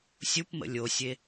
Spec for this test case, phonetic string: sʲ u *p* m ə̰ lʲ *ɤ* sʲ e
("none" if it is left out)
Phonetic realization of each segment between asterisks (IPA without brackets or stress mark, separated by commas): p, o